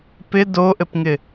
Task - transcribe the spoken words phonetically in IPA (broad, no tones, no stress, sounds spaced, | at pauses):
p ɪ d o ʔ ɘ p ŋ ɪ